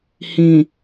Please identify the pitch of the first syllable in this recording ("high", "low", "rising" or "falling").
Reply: low